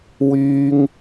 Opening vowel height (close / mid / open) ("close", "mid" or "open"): close